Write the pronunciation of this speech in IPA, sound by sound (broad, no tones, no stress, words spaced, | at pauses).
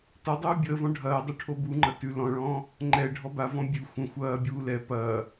tɔdˤuː bʲəːvɔ̃ ɖʱɐːdˤu ʈʰobuŋ͡ǃɐ tʉ lɔ̃ɭɔ̃ː | ŋ͡ǃɛ ɖʱɔbavɔ̃ bʲʉ xʷə̃ xʷɐːbʲuː lɛ pɐː